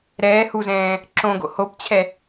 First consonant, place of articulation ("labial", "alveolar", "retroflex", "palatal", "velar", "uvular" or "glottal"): alveolar